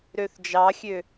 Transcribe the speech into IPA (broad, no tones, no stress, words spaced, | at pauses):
ɾøθd͡ʒɑxʲø